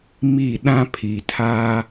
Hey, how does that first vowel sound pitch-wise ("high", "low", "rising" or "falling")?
falling